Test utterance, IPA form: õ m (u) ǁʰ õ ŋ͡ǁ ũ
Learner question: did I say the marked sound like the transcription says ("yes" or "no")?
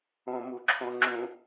yes